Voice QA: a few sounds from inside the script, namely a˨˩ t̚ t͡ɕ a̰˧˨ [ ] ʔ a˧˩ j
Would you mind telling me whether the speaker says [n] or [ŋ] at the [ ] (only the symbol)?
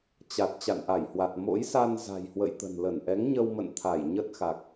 n